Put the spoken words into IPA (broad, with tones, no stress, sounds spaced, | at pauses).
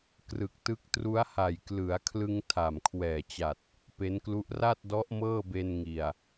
k r ɯ˨˩ k̚ t ɯ˦˥ k̚ t r u˦˥ a̯ h a˨˩ j k l ɯ˩˦ a̯ kʰ l ɯ˧ ŋ tʰ a˨˩ m kʰ w ɛː˨˩ t͡ɕ a˨˩ t̚ | p e˦˥ n k l u˦˥ ʔ r a˥˩ t̚ d ɔ˦˥ ʔ m ɤː˥˩ b e˧ n ŋ i˨˩ a̯